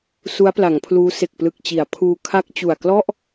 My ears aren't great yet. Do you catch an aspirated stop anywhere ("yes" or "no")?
yes